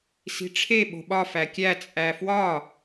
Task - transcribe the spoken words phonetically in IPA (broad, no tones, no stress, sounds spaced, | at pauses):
s i̤ ʈ͡ʂʰ e ɓ o̤ ɓ ɒ f æ kʲ æ t͡sʼ æ f w ɒ